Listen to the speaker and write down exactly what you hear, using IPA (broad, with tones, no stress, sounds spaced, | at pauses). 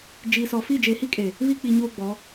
d͡ʒ iː˨ s ɔ˨ f i˦˨ d͡ʒ e˨ h i˦ kʼ e˨ | β i˦ k͡p i˨ ɲ oː˦ ɡ͡b ɔ˨˦